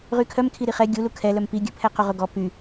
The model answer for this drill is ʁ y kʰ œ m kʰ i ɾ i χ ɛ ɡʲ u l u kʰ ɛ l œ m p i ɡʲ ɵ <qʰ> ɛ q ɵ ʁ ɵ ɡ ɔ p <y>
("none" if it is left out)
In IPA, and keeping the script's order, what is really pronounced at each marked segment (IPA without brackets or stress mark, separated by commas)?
pʰ, y